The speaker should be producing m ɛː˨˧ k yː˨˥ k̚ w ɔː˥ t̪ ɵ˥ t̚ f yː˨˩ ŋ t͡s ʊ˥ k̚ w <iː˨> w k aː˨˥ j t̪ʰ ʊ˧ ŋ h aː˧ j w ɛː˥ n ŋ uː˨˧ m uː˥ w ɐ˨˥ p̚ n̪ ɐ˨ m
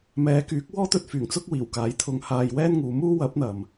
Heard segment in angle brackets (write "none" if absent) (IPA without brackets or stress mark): iː˨˩